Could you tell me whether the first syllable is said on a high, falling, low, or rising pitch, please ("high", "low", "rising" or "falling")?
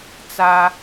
high